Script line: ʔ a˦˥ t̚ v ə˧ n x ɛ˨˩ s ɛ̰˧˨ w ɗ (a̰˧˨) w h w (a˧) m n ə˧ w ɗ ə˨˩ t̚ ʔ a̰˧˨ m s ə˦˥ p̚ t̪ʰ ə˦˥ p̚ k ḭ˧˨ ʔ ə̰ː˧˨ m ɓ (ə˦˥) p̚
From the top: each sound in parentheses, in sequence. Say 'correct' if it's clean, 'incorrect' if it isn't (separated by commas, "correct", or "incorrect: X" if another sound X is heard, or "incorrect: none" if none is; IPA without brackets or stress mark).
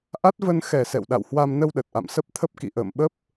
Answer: correct, correct, correct